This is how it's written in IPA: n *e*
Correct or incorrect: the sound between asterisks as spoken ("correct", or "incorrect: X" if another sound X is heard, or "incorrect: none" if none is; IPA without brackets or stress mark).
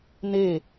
correct